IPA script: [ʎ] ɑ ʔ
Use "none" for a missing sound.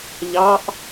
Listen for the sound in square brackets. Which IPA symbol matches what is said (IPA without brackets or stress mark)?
ʎ